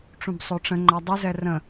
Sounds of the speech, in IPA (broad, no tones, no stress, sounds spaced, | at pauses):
ʈ͡ʂ ũ b sˤ o ʈ͡ʂ ə̃ ŋ͡ǃ a dˤ ə z ɛ r ə̃